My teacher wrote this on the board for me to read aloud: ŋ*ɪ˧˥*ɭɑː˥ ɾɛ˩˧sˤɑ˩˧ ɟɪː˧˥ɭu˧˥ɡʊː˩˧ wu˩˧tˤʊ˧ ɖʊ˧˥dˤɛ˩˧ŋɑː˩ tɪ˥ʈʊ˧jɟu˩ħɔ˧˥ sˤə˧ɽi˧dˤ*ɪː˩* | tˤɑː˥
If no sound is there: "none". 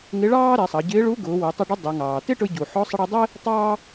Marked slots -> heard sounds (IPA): ɪ˧˥, ɪː˥

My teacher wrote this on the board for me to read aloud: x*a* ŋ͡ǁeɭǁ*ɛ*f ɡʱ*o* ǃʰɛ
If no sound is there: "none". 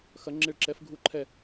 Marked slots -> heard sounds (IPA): ɐ, ɛ, u

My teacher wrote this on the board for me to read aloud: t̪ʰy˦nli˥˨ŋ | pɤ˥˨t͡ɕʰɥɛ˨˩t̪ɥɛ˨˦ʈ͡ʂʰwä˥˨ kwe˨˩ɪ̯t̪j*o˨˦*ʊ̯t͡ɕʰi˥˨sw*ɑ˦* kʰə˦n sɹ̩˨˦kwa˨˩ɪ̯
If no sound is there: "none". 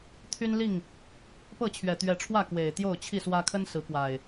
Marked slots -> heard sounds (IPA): o˥˨, ä˦

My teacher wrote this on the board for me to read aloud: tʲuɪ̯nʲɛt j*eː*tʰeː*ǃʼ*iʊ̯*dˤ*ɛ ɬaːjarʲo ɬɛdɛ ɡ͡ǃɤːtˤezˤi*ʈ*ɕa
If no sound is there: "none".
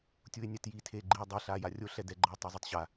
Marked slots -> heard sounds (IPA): iː, ɡ͡ǃ, dˤ, tˤ

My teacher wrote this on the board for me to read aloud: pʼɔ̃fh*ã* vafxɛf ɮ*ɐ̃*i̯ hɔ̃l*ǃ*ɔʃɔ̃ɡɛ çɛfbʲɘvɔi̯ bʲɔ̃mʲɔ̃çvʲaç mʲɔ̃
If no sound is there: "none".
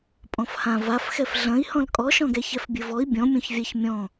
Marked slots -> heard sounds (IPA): ã, ɐ̃, kʼ

